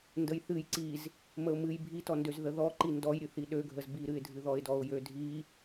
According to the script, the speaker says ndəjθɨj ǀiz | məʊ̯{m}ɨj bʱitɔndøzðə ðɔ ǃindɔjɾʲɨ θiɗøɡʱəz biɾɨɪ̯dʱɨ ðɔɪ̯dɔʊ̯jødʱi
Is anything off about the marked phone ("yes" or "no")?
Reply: no